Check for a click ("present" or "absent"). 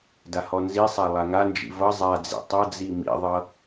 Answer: absent